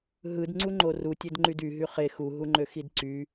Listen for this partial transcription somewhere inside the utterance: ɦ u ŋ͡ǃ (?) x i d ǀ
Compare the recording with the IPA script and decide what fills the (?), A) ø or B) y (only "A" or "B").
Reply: A